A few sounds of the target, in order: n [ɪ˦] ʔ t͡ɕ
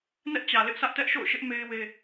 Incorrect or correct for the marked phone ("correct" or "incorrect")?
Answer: incorrect